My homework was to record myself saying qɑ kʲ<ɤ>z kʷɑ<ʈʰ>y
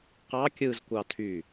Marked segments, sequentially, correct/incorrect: incorrect: ɯ, incorrect: tʰ

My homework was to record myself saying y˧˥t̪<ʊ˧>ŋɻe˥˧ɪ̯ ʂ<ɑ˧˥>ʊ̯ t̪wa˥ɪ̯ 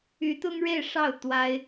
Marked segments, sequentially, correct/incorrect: incorrect: ʊ˥, incorrect: ɑ˥˩

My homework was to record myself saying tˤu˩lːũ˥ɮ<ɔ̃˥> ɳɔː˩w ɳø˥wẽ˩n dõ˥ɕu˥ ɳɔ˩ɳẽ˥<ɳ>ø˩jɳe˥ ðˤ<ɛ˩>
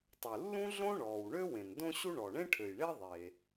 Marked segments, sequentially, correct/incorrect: incorrect: õ˥, incorrect: ʈʰ, incorrect: e˩

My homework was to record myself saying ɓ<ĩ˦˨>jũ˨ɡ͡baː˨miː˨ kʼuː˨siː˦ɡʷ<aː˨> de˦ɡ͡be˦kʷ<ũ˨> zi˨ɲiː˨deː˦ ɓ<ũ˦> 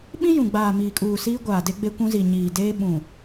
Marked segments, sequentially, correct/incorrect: incorrect: ĩ˦, correct, incorrect: ũ˦, incorrect: ũ˨

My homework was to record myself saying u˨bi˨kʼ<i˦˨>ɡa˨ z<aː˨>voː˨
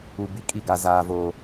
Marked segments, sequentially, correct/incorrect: correct, correct

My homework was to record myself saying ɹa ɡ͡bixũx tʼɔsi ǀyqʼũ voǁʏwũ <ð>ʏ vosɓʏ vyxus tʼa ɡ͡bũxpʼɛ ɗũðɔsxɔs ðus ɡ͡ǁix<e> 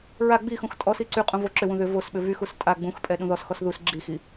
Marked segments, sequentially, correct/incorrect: correct, incorrect: i

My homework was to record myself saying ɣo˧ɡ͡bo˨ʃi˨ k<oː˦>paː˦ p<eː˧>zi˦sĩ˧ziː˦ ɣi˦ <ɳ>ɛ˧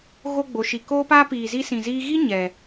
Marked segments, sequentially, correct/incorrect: correct, incorrect: iː˧, incorrect: ɲ

